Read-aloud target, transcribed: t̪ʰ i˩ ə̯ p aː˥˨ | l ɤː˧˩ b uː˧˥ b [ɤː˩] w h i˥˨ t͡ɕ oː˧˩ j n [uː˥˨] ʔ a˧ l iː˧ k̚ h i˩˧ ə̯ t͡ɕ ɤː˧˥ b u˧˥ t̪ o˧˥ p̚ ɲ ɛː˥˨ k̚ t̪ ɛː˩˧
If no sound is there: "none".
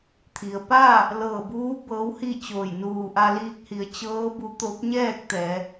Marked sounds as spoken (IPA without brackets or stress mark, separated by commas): ɤː˧˥, uː˧˩